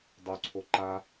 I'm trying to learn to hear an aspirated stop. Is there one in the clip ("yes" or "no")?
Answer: yes